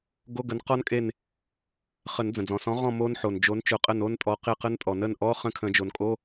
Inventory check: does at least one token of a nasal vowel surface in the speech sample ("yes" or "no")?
yes